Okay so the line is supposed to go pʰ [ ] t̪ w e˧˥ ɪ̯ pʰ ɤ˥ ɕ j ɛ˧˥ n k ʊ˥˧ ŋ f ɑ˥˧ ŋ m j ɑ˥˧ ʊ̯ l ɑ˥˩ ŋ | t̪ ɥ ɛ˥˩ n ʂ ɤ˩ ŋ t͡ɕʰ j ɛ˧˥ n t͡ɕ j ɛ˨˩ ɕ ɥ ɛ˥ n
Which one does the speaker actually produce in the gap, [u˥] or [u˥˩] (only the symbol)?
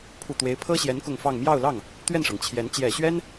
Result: u˥˩